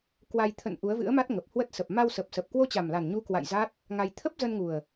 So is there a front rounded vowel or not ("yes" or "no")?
no